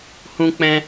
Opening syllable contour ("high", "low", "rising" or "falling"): high